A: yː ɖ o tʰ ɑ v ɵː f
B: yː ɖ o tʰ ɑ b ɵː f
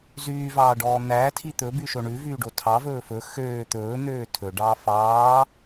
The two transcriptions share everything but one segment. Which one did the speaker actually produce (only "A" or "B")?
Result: A